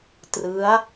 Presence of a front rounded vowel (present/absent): absent